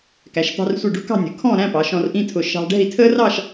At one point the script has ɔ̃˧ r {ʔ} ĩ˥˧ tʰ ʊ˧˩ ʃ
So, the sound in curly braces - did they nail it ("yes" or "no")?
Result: yes